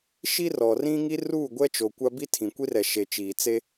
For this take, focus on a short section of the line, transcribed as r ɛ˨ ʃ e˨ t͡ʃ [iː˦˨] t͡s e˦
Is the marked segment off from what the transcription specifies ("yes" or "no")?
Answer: yes